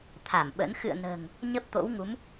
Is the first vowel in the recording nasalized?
no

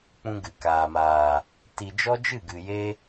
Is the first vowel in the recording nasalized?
yes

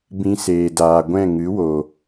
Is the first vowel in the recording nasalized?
yes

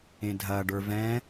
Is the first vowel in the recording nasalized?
yes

